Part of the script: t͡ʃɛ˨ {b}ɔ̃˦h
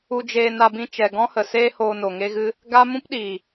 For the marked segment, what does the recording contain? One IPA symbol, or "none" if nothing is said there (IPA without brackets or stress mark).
ɡ